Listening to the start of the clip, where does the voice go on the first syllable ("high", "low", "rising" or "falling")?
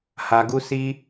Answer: low